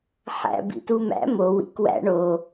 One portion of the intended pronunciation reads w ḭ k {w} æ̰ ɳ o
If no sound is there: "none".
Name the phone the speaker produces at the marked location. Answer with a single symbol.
w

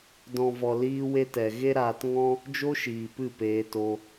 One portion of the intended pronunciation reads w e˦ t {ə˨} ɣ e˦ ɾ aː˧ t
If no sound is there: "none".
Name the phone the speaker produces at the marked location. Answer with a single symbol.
ɛ˨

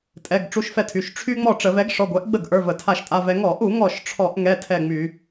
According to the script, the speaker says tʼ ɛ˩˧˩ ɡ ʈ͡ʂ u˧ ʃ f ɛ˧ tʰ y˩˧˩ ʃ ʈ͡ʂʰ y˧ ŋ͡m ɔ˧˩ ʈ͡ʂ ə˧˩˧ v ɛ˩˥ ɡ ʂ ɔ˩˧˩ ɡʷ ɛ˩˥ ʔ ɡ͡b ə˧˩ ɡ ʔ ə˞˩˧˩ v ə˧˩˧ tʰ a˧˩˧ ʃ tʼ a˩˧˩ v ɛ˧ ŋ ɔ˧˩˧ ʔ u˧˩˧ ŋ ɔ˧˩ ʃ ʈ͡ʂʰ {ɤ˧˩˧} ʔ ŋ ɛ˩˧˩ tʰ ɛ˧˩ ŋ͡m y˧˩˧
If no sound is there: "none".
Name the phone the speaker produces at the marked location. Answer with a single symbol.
ɔ˧˩˧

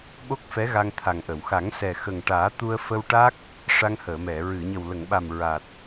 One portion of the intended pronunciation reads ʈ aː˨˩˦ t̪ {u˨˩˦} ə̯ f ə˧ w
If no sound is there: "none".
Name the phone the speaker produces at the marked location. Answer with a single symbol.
u˧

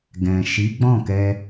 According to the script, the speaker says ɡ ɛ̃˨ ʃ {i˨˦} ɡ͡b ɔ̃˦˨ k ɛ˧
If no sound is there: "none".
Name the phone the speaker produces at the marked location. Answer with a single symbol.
i˨˦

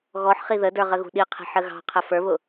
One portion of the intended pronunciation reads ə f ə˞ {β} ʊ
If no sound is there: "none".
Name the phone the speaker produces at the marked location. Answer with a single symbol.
β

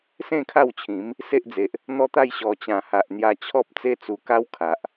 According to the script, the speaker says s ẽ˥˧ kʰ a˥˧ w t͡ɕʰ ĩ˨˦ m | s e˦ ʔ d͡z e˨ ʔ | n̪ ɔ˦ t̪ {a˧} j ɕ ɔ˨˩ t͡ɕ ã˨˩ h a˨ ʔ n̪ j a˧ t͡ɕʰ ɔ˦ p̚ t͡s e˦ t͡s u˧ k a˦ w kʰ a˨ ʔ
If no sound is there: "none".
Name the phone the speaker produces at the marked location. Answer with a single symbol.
a˥˧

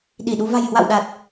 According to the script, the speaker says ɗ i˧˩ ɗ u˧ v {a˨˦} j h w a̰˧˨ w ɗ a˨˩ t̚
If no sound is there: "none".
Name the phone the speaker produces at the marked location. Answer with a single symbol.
a̤˨˩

